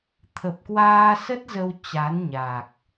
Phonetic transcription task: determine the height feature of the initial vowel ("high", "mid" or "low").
mid